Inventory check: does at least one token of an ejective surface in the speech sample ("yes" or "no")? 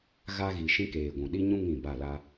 no